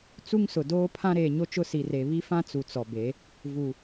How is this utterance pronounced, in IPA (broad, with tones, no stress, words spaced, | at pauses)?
t͡su˦ŋsʊ˨doː˦ pʰã˦ ɾeː˨ɲo˦t͡ʃʊ˦ si˨re˨ βi˦fã˦ t͡su˨t͡sɔ˨be˨˦ | vu˨